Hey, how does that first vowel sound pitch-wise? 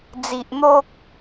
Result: low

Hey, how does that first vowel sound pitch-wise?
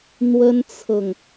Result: high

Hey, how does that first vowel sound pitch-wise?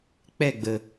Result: falling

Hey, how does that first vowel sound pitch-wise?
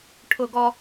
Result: high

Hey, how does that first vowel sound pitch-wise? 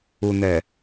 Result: low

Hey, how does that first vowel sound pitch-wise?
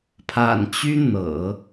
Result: low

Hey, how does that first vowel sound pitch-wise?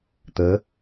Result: rising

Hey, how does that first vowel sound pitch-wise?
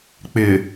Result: low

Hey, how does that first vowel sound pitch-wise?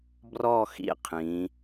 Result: falling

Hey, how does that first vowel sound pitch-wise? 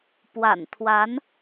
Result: low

